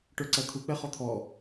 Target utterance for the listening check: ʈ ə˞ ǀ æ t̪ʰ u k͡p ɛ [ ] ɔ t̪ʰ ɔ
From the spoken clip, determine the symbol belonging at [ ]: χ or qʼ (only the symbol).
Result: χ